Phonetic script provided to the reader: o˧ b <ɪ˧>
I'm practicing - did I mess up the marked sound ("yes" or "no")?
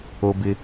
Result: no